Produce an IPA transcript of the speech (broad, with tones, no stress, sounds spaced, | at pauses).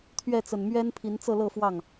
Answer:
t̪ʰ ɥ ɛ˥˩ t͡s ə˨˩ n m ɥ ɛ˥ n pʰ i˧˥ n t͡s ɤ˥˧ l ɤ˥˧ f w ɑ˥˩ ŋ